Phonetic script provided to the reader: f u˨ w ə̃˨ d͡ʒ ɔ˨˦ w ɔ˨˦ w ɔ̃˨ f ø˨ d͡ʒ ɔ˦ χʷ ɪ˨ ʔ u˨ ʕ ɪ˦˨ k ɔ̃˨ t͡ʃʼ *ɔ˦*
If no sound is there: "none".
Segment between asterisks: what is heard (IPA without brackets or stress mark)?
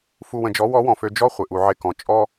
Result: ɔ˦